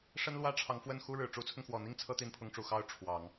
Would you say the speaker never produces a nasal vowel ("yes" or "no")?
yes